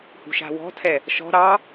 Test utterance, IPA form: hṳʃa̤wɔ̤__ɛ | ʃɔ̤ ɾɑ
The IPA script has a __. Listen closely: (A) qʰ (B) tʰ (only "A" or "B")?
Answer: B